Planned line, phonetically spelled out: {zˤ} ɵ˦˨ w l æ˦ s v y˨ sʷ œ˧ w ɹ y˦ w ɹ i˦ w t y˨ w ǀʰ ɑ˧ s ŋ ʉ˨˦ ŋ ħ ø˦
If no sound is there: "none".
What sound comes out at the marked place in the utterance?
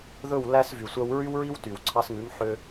ð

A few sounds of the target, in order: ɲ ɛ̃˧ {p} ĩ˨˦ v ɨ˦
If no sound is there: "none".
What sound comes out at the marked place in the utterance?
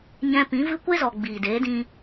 p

